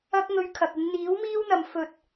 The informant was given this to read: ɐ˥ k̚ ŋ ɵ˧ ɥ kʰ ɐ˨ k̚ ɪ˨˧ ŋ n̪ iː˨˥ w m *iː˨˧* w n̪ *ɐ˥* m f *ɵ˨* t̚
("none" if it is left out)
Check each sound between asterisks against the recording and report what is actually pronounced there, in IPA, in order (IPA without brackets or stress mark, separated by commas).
iː˥, ɐ˨, ɵ˨